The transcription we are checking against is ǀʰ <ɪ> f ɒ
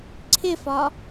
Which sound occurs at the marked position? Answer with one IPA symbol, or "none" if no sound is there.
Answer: ɪ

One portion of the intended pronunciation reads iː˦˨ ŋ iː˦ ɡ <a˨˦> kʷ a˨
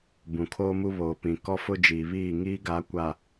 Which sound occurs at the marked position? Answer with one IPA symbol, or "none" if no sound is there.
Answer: a˨˦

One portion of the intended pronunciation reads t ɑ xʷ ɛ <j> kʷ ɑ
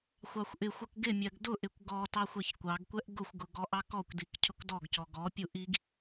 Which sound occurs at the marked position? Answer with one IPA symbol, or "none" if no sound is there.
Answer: ç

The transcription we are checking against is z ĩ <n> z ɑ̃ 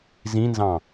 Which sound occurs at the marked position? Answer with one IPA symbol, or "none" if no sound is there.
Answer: n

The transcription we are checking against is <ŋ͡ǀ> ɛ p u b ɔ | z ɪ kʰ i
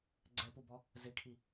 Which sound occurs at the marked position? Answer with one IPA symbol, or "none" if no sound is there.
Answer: ɡ͡ǀ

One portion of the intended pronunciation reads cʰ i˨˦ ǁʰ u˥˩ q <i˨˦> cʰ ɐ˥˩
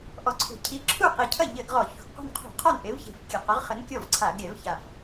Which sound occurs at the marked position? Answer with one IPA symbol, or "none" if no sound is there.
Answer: i˨˩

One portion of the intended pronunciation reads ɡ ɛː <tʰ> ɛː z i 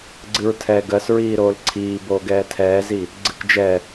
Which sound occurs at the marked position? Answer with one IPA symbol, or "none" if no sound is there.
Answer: tʰ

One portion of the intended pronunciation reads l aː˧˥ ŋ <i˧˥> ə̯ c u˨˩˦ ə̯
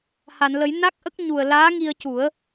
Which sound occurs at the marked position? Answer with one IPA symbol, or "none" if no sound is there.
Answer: i˧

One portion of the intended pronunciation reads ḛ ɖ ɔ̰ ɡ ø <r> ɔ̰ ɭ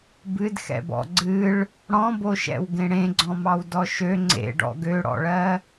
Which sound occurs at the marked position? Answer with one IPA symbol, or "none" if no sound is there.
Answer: ɽ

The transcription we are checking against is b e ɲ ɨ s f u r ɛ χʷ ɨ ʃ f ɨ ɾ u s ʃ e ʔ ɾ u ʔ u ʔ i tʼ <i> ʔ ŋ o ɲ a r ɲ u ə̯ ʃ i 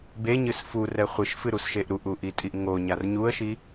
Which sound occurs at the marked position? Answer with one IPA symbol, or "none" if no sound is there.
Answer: i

